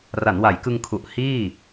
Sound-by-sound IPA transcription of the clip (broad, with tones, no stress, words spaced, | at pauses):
ra˩˦nwa˩˦jkɯ˧ŋkʰu˨˩ʔ hiː˥˩